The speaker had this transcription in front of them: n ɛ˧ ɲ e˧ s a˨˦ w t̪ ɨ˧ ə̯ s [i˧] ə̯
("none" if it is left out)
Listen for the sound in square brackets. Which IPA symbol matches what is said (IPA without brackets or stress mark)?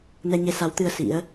ḭ˧˥